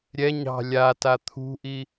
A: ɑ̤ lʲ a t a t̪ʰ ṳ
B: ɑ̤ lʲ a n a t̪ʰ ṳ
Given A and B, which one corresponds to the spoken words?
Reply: A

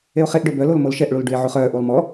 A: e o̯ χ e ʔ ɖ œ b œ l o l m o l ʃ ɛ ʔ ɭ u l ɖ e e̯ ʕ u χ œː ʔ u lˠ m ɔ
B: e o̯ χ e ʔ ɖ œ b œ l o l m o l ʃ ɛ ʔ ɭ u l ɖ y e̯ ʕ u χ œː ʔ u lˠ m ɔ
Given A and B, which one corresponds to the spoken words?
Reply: B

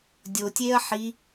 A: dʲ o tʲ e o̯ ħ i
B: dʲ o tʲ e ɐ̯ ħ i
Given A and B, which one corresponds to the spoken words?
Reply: B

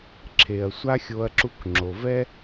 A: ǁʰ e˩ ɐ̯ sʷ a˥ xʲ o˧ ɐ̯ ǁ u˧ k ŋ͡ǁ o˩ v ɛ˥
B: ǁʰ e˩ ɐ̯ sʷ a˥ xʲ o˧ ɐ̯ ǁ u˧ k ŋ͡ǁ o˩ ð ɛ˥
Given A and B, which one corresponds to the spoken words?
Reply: A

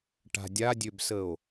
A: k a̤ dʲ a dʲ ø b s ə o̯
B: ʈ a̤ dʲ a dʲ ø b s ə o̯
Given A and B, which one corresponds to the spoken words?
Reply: B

